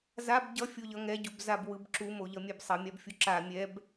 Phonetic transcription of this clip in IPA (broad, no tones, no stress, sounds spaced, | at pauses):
z a b ɟ ʌ fʲ o ʎ ʌ ŋ ɛ ɟ u b z a b w ɯ b ǁ u m o ʎ ʌ mʲ ɛ b sˤ ʌ mʲ a b fʲ u ǁ a mʲ ɛ b